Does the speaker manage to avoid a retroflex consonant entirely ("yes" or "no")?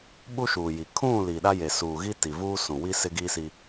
yes